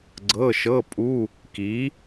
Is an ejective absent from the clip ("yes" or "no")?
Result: no